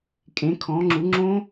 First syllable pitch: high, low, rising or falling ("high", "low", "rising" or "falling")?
rising